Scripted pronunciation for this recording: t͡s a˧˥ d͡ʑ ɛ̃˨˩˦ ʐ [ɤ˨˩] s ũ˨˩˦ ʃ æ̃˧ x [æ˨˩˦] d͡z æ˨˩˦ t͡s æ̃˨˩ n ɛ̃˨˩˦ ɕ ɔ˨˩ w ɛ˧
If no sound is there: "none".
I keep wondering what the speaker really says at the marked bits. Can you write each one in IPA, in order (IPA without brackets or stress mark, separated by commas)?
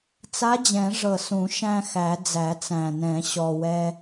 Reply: ɤ˨˩, æ˨˩˦